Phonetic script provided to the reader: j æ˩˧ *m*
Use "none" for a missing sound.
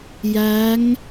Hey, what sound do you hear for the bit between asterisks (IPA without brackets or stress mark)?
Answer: ŋ